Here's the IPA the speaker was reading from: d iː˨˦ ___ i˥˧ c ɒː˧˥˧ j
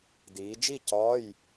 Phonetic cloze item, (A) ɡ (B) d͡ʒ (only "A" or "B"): B